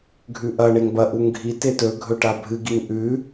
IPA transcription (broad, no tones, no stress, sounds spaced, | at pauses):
ɡʱ ʉ ʔ ɐ ɳ e ŋ b ɐ ʔ u ŋ ɡʱ i t e t ɵ ɡʱ ɵ ʈ a bʱ ɨ ɡ i ŋ ʔ ʉ